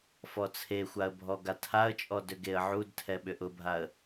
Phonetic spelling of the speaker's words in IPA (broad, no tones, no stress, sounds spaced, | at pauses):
f ɔ t͡sʰ e xʷ a ə̯ bʱ ɔ ɡ a tʰ a ə̯ t͡ʃʼ ɔ d ʏ ɡ e ə̯ ʕ u d tʰ ɛ ɓ ʏ ʔ ʊ bʱ a ə̯